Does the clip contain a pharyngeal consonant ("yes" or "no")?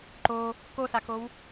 no